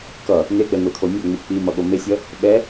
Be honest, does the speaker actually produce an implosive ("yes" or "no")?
yes